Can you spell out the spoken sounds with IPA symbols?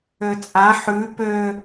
øt͡sʼã ħʉ pø

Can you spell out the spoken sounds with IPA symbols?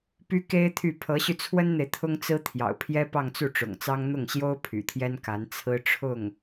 py˥ke˥ɪ̯t̪ʰy˥˩ pʰɤ˧˥ɕy˧t͡sʰwə˥nn̪e˨ɪ̯ t̪ʰʊ˥ŋt͡sɹ̩˥t̪ʰjɑ̰˨˩ʊ̯pʰjɛ˥ pɑ˥˧ŋt͡su˥˩ʈ͡ʂʊ̰˨˩ŋt͡sɑ˥ŋ n̪ʊ˥˩ŋɕjo˥ʊ̯ pʰy̰˨˩t̪ʰjɛ˥nka˧˥n t͡sʰɹ̩˥ʈ͡ʂʰʊ˥˩ŋ

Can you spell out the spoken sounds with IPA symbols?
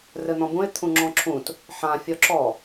rɘn̪ɔ̃bũɪ̯ t̪ʰũŋ͡ǁɔ̃ǁʰũt | ħã fʲɔǁɔ

